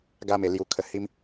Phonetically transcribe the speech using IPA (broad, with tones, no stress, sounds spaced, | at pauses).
ɡ a˦ m e˧ l j u˧ kʰ ə˧ h i˦ m